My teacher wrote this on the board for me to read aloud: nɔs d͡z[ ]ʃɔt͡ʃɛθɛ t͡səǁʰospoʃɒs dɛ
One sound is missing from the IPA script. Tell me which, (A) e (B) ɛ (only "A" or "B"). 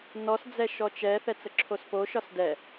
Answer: B